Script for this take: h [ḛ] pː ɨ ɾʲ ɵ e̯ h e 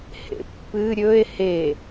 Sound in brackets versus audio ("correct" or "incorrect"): correct